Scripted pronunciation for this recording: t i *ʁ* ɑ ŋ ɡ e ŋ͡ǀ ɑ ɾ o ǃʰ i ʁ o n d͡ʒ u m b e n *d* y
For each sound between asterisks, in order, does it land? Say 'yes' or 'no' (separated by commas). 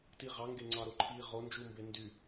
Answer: yes, yes